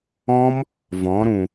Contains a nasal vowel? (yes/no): yes